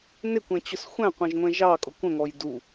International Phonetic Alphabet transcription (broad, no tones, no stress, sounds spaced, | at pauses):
n ɪ kʷ ɛ̃ t͡ɕ ʊ s xʷ æ̃ qʷ ɛ̃ ʒ ŋʷ ɛ̃ ʒ ɑ kʼ ʊ kʷ ə̃ ŋ ɔ j d u